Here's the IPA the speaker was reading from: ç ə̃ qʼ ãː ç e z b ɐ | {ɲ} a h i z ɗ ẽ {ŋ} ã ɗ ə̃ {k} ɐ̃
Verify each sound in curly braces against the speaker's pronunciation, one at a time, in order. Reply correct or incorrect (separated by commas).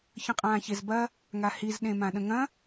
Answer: incorrect, incorrect, incorrect